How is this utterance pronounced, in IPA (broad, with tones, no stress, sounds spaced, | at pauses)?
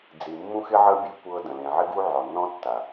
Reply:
d͡z i˨ mː ũ˦ x ɪ˦ ʕ ə˦ bʲ e˧ kʷ ɤ˦ d ə̃˨ l ẽ˨ ʕ ɪ˦ ɡ u˦ ʕ ɔ˨ nː ɔ̃˦ tː a˨